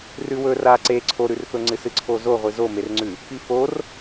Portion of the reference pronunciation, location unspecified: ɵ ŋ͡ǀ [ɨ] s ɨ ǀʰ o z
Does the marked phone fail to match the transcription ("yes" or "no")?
no